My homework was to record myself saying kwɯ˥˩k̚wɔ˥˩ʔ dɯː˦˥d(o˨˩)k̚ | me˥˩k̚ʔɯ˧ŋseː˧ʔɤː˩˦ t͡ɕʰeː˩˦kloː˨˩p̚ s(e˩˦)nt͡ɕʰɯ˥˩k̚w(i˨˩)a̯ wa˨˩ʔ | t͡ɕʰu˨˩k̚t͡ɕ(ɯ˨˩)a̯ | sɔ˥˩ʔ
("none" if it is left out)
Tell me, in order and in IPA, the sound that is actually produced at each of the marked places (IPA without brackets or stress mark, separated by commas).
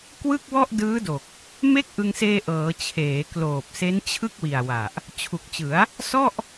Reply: o˨˩, e˦˥, i˨˩, ɯ˩˦